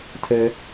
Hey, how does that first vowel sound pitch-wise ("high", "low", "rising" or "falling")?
high